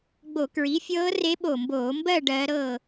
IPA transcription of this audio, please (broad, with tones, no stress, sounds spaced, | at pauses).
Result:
ɡ͡b o˧˩˧ k ɹ i˩˥ fʲ ɤː˧˥ r e˧˥ ɓ o˧˩ m b oː˧˩˧ m b ɜ˥˨ ɖ ɜː˧˥ ɾ ɤ˥˨